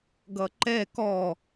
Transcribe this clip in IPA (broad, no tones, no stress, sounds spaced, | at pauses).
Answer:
ɡ ʌ ǃ ɛ k ɔ